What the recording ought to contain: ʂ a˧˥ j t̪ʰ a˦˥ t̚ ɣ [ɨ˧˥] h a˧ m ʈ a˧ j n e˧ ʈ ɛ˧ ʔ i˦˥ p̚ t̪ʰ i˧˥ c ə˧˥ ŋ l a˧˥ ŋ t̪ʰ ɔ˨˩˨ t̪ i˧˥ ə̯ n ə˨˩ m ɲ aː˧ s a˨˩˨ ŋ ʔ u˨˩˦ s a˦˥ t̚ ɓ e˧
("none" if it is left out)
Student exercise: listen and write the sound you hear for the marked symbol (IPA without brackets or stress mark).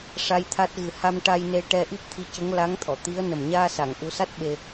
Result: ɨ˨˩